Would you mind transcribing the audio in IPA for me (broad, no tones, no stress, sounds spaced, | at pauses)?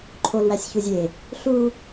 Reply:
ǃʰ o l w æ sʲ ç u zʲ e | ɬ u